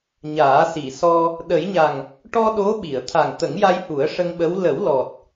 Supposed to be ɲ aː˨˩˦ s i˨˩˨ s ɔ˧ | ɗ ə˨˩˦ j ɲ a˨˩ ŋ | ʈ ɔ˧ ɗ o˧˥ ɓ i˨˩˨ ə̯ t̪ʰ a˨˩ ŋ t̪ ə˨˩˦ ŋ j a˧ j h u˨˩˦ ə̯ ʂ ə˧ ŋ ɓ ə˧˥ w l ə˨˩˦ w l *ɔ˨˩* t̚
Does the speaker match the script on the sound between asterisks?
yes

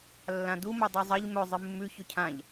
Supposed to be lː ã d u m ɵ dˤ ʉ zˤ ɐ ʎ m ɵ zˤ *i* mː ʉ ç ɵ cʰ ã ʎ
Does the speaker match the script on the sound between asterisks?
no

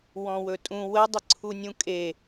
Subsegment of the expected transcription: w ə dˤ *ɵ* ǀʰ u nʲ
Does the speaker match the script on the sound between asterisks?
no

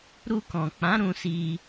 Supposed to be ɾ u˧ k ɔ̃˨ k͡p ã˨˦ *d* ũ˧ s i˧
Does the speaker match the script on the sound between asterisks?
no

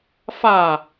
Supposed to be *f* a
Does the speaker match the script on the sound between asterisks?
yes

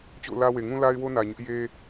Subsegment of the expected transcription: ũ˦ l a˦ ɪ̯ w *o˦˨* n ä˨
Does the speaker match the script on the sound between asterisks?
no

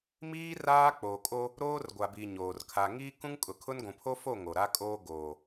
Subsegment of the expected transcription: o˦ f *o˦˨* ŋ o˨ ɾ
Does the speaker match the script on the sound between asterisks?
yes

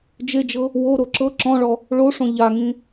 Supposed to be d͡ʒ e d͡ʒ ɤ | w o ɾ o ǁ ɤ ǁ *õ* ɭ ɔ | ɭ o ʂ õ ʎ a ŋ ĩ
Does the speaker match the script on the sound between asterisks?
no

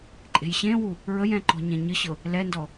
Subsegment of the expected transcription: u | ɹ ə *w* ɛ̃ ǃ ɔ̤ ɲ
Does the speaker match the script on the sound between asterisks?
no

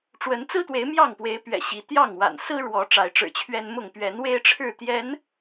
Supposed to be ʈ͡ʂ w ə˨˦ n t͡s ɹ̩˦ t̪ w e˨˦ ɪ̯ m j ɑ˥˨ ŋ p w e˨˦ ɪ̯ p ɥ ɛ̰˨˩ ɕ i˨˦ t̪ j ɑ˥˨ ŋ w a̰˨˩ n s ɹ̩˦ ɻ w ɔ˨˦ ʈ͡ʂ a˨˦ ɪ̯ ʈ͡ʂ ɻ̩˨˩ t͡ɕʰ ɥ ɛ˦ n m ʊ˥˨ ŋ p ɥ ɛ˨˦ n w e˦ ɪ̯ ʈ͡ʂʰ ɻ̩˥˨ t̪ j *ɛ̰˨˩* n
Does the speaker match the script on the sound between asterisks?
no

